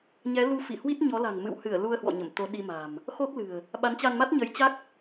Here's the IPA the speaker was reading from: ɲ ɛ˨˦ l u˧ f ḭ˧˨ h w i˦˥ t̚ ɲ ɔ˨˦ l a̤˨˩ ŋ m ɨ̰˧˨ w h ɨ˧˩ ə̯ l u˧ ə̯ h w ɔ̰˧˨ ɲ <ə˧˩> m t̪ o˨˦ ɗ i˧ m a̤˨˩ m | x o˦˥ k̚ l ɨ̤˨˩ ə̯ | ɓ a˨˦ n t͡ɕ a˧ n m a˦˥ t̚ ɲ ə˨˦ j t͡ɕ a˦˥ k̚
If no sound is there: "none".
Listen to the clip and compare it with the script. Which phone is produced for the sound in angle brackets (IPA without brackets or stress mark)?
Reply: ə˧˩